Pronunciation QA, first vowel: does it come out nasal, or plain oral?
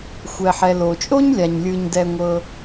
oral